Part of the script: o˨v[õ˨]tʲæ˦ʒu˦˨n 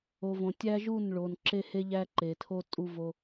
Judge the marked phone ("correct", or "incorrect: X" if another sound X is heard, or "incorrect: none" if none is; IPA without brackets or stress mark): correct